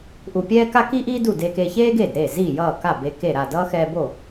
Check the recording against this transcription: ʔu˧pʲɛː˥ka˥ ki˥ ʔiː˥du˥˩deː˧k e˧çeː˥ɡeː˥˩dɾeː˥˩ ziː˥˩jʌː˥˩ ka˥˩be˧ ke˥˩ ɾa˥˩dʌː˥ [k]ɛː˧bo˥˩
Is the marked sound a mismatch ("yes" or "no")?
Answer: yes